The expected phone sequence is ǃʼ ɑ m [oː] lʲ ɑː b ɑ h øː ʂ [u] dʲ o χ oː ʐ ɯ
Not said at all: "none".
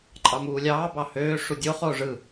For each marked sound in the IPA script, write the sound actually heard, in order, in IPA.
uː, u

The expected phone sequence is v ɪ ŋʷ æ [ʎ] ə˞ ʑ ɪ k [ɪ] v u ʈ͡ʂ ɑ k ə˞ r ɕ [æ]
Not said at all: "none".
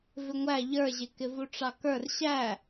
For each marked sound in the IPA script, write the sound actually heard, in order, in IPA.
ʎ, ɪ, æ

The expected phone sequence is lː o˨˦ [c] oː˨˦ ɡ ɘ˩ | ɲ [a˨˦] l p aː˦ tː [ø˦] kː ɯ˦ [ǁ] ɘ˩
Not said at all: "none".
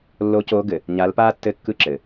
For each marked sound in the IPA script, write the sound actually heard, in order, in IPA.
c, a˨˦, ɘ˦, ǁ

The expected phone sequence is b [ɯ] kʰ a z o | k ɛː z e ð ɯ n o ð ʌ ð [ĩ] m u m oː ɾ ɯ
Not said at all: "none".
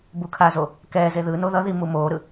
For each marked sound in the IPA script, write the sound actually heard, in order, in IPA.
u, i

